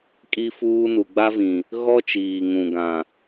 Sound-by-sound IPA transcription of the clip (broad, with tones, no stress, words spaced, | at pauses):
kʼi˦fuː˦ nu˨ɡ͡ba˦vĩ˨ | ɣɔ˦t͡ʃiː˨ŋũ˨ ɡã˨